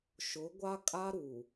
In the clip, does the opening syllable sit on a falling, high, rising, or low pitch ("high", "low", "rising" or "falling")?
rising